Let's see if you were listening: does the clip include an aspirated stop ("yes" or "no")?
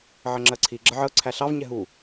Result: yes